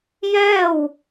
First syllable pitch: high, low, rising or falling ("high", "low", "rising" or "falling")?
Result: falling